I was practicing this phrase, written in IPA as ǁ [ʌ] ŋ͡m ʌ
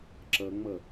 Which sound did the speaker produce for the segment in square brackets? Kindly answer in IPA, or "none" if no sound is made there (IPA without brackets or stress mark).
ʌ